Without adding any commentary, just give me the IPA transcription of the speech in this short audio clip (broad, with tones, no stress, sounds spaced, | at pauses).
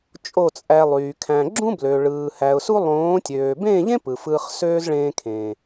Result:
t͡ʃʼ o˦˨ t͡sʼ æ˧ lˠ yː˨ kʰ æ̃˨ ɡ͡ǁ ũ˦ b l ø˨ ɭ ɯː˨ h æ˨ ʊ̯ s u˦ lˠ õː˨˦ tʲ øː˨ b ẽː˦˨ ʎ ẽ˦ p ɯ˨ f ɯː˧ χ s øː˦ z ɭ ẽː˧ kʰ ẽː˨